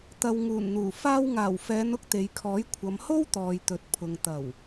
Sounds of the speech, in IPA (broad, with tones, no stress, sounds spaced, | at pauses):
t̪ ɐ˨ w ŋ uː˨˩ n n̪ uː˨˩ f aː˧ w ŋ aː˨˩ w f ɛː˨˧ n ʊ˥ k̚ t̪ e˨˧ j kʰ ɔː˨˥ j kʷʰ ɐ˨˧ m h o˥ w t̪ ɔː˨ j t̪ ɵ˨ t̚ pʰ ʊ˨ ŋ t̪ ɐ˨˩ w